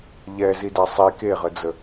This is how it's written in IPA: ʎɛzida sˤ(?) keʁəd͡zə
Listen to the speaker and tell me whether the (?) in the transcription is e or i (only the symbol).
i